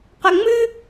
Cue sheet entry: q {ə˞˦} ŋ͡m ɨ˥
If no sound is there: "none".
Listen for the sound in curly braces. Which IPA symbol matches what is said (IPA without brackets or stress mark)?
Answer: ɐ˦